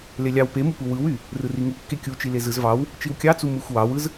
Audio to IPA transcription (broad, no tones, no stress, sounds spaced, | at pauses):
l e lʲ ɑ w p e m u p u w ɯ w y | r ɯ r i ŋ u kː e kʲ u t͡ʃ i l e z ɯ z v ɑ w | t͡ʃ i w kʲ ɑ t͡s u m ɯ xʷ w ɑ w ɯ z